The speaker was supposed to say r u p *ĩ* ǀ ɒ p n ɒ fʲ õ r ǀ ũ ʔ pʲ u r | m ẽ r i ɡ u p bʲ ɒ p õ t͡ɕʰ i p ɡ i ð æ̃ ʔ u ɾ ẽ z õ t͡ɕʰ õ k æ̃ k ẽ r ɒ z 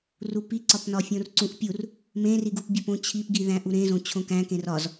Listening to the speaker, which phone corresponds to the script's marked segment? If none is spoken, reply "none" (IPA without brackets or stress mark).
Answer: i